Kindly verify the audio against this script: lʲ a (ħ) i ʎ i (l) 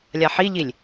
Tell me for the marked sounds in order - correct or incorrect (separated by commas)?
correct, incorrect